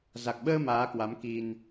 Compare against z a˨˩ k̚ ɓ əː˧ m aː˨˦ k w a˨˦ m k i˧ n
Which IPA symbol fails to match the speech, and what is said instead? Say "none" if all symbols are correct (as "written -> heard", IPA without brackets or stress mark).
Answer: none